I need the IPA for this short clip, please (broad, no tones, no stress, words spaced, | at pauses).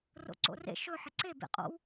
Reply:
ro̰ǀo̰rḛ ʃɵ ħɪǀe bḛqʼo̰w